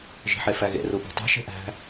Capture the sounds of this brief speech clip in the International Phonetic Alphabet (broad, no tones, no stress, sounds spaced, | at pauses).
ʒ i̤ ħ e f æ ɣ ḛ r u b ṳ tˤ i̤ ʃ e̤ ʔ æ̤